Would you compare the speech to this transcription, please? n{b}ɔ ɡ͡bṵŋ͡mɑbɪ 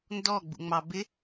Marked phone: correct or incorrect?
incorrect